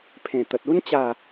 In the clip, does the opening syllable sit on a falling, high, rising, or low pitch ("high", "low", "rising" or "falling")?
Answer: low